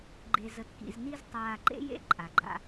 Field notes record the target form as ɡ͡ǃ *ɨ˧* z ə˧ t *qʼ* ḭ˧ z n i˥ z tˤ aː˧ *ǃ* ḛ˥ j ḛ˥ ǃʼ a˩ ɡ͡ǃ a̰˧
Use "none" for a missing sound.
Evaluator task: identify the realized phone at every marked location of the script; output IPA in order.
e˧, k, ǃ

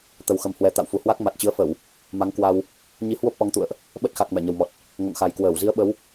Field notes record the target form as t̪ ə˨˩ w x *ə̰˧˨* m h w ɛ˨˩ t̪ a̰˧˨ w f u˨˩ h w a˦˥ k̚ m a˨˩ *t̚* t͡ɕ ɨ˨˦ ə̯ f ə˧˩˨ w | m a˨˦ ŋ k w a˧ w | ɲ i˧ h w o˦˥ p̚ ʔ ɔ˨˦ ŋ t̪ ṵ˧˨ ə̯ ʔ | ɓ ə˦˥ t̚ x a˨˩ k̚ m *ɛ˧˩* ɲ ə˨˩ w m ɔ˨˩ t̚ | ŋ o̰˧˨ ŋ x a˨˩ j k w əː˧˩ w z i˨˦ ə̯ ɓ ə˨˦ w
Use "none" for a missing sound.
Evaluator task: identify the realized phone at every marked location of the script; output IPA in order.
ə˨˩, t̚, ɛ˧˩

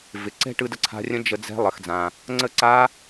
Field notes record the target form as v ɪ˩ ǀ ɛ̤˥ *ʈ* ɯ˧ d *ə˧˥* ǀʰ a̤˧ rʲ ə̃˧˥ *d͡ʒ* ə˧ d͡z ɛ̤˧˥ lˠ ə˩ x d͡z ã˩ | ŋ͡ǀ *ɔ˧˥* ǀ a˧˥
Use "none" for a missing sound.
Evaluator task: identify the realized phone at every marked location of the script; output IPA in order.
ʈ, ə˧, d͡ʒ, ə˧˥

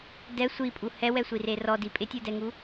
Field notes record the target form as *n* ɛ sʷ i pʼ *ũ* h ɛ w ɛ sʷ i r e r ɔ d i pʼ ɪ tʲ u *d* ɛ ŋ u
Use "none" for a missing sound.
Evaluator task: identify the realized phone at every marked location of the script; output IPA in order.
d, u, d

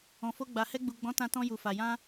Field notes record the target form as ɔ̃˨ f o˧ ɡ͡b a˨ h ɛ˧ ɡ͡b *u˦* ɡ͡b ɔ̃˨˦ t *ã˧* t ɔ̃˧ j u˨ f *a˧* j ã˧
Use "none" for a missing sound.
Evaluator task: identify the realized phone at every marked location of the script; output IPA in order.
u˨, ã˧, a˨

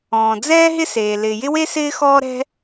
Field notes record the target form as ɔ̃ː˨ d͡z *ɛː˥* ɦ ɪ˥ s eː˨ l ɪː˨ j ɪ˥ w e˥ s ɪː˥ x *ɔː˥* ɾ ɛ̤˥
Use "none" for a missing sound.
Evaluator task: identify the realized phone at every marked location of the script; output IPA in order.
ɛː˥, ɔː˥

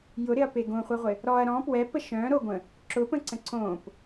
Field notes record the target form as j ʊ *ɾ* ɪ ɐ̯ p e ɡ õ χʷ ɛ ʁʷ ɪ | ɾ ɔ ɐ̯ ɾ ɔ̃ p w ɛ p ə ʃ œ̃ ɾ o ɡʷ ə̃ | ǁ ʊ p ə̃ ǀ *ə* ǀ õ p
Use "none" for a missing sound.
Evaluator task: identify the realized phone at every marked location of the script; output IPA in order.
ɾ, ə̃

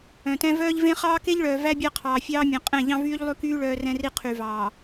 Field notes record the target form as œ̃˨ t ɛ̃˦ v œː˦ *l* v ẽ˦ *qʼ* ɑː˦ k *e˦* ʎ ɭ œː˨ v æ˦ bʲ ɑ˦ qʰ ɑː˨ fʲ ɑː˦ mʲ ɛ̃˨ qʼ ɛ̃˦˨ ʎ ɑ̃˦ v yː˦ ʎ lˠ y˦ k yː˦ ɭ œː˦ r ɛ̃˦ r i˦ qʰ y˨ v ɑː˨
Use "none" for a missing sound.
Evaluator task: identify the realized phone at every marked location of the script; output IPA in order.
ʎ, χ, e˦

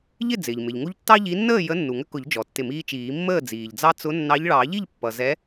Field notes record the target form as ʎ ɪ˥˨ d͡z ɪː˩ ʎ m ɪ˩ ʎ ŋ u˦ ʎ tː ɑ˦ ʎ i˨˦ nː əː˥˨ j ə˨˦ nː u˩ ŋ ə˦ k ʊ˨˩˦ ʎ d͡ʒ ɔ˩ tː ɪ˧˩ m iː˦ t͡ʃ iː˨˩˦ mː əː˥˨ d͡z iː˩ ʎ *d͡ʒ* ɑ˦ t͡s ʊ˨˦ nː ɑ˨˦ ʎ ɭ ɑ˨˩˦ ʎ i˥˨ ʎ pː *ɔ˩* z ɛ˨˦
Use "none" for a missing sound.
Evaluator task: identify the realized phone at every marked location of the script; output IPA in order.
d͡z, ʌ˩

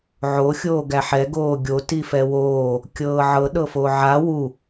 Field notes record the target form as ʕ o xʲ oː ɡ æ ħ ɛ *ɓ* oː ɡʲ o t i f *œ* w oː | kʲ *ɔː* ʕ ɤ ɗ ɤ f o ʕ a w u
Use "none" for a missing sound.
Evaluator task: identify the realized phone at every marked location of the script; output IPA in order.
ɡ, ɛ, ɤː

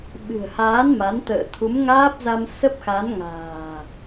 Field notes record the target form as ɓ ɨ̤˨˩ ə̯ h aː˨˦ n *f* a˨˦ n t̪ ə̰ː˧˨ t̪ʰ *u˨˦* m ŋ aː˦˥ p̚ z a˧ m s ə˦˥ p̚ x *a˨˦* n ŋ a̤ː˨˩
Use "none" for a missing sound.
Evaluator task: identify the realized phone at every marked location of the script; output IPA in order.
m, u˨˦, a˨˦

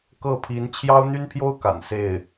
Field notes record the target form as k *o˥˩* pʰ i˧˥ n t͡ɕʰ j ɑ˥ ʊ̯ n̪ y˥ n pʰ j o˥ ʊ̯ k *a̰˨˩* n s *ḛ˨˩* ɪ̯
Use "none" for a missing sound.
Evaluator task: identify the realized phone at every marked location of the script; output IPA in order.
ɤ˥˩, a̰˨˩, e˥˩

